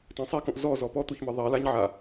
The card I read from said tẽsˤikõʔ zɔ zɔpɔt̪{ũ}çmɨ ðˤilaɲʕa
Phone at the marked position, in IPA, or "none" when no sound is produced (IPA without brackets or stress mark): u